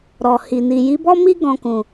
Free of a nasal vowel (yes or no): no